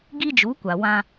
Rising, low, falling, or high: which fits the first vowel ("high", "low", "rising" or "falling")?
high